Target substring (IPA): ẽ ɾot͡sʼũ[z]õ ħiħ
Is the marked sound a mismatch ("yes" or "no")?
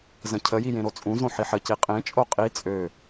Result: no